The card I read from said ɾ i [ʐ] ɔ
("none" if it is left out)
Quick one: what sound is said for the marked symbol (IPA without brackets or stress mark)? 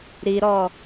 ɾ